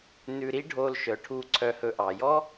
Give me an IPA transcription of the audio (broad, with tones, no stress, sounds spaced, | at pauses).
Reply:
n ʉ˧ ɾ i˥ ɖʱ o˧ l ʃ œ˩ ʈʰ u˧ ǀʰ œ˧ h ɵ˧ ʔ ɑ˩ j ɔ˥